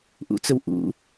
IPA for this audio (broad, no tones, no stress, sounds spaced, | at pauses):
ʔ ṵ t͡s ɵ w ʔ ṵ